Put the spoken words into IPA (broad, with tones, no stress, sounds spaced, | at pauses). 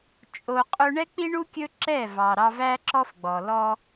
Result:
t͡ʃʼ o˧ qʼ ɵ˦ ɳ ɛ˦ k͡p i˦ ɳ u˦ kʲ ɵ˦ ǁ ɛ˦˨ v ɑ˨ ɾ ɑ˧ v æ˦ ǁ ɔ˦ f ɡ͡b ɔ˨ l ɔ˦